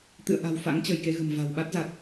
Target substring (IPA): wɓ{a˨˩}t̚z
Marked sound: incorrect: a˦˥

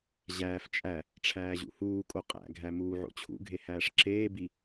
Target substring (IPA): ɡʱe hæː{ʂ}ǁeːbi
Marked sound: correct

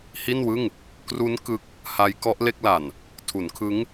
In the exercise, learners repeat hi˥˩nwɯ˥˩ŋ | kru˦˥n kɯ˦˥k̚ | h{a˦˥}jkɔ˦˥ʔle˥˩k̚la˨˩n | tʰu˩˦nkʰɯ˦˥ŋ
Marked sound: correct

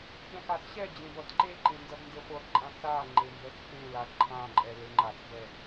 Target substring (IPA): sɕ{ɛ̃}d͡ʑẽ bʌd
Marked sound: incorrect: ɛ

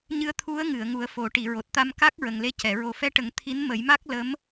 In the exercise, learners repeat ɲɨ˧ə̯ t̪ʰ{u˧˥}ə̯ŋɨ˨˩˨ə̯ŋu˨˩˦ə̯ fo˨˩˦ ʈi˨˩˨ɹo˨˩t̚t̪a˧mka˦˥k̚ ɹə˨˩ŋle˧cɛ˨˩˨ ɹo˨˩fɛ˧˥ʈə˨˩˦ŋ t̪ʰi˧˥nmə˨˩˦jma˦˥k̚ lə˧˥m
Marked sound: correct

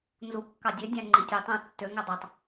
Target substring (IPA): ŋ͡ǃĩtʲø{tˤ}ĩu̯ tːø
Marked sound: correct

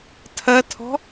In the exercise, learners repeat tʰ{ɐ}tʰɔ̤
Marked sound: correct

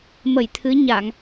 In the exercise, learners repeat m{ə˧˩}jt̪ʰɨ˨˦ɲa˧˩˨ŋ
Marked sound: correct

